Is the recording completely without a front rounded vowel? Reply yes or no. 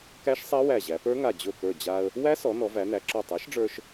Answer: yes